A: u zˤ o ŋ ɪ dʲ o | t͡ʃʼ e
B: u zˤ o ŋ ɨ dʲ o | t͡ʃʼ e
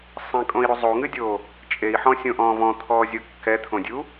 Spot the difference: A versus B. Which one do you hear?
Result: B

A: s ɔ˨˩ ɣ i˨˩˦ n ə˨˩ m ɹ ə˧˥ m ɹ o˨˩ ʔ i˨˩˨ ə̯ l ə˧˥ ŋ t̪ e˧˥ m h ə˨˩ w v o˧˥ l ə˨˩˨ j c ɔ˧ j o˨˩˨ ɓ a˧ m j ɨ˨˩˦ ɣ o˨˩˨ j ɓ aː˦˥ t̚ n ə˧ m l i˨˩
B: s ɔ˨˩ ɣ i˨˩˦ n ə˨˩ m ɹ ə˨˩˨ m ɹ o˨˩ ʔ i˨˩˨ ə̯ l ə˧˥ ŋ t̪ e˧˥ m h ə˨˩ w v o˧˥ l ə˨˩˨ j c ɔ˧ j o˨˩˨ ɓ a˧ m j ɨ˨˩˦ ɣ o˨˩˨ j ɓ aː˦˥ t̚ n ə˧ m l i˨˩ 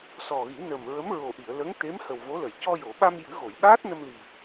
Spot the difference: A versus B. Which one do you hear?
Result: A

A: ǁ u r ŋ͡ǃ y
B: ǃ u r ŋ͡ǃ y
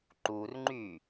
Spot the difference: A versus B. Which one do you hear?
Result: B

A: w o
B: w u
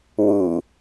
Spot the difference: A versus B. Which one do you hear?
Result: B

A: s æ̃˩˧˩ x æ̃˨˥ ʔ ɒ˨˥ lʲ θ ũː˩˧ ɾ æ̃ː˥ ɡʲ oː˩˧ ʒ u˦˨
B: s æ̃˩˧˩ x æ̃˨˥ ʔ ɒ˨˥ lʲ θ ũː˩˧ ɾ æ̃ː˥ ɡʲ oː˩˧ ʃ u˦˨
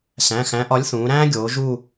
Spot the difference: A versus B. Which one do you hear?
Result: A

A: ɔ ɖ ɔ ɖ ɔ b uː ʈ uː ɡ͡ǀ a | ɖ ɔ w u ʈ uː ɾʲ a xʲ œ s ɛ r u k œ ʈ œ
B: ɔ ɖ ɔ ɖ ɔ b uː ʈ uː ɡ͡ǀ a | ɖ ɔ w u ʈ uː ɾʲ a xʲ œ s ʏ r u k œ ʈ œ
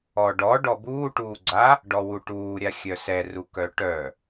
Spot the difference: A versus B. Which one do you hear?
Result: A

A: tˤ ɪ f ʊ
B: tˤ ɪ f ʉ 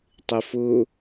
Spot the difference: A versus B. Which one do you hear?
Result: A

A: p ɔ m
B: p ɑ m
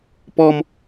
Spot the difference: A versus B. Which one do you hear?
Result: A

